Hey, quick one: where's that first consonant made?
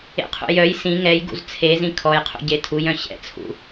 uvula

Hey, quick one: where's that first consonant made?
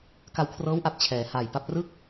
velum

